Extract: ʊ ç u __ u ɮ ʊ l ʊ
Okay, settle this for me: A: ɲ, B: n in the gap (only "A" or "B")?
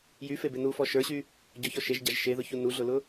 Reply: B